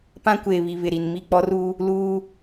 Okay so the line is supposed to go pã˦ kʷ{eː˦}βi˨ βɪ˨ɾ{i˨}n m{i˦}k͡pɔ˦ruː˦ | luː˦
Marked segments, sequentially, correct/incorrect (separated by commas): incorrect, correct, incorrect